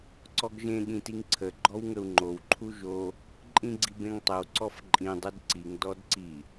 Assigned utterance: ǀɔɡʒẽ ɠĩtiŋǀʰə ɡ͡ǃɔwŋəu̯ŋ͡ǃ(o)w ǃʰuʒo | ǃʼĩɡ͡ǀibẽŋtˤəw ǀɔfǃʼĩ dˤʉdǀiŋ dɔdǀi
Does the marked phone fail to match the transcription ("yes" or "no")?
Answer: no